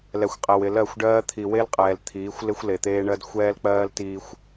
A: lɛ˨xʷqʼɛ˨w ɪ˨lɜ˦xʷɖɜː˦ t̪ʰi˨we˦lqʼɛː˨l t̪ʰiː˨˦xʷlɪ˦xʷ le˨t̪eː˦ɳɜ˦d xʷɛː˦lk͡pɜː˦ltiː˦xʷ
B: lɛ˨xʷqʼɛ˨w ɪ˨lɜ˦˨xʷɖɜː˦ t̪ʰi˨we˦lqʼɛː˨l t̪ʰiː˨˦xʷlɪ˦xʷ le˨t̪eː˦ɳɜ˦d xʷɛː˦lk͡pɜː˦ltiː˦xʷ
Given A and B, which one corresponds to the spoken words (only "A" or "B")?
B